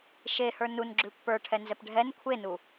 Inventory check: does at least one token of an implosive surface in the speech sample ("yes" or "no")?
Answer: no